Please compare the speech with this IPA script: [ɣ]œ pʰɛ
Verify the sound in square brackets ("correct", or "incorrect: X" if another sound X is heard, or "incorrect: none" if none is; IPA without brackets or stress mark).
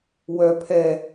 incorrect: w